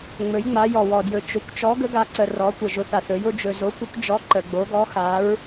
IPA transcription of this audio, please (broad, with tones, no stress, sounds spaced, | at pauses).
ŋ͡m ɵ˧˥ j ŋ͡m a˧˥ j ɔ˧ w ɔ˧ d j ɵ˧˥ t͡ʃ ʊ˧˥ kʷ t͡ʃ ɔ˧˥ ɡ ə˧˥ ɡ a˧ ǀ ə˧ r ɔ˧˥ kʷ ə˧ ʒ ʊ˧˥ θ a˧ θ ɵ˧˥ j ʊ˧˥ d͡ʒ ɵ˧ z o˧˥ kʷ ə˧˥ kʷ d͡ʒ ɔ˧˥ ǃ ə˧ ɡ͡b o˧˥ ɡ ɔ˧˥ x a˧˥ ɹ